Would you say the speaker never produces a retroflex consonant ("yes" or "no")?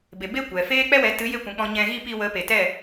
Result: yes